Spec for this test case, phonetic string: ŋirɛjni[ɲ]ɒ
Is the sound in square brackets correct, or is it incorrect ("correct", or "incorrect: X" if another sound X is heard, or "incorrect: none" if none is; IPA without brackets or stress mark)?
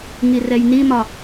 incorrect: m